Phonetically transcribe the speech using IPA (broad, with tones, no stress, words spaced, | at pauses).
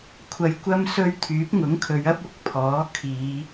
kʷʰɐ˧jkʷɐ˥m sɵ˥ɥ t̪ʰyː˨˥p̚ŋʊ˨˥ŋkʰɵ˨˧ɥɐ˥p̚ ʊ˨k̚ pʰɔː˨˥ kʰiː˨˧